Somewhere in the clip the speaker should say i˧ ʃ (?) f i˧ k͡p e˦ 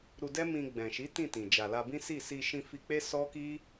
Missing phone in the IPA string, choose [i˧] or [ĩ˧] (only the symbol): ĩ˧